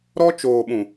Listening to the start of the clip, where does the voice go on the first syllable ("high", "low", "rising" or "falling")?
high